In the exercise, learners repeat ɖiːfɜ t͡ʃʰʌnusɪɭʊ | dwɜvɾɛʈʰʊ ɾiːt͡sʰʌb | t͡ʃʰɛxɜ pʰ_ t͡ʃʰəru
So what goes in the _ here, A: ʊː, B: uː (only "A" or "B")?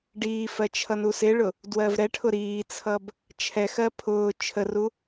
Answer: A